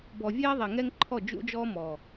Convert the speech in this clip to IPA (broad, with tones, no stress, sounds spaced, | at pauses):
b ɔ˨ vʲ eː˦ ðˤ e˨ ŋ ɛ˦ ŋ ǃʰ ɔ˦˨ d͡ʒ ṵ˦ d͡ʒ ɔː˦ m ɔ˨